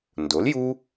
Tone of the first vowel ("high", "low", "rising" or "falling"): rising